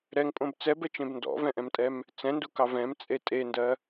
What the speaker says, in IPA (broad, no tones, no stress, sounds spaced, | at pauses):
ɾ ɛ ŋ pʼ õ b t͡s ɛ b ɛ t͡ʃ ẽ b n d ɔ̰ v ɛ̃ ʔ ɛ̃ m tʼ ɛ m | t͡s ɛ̃ n d u k ɑ v ɛ̃ m t͡sʼ e tʼ e n d ɜ